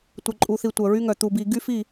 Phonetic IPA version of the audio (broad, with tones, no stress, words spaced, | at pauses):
tʷɘ˨ǃʼu˨θi˨ tʷœ˨ɹy˦ŋœ˨ t̪u˨bi˨ ɡy˦fi˦˨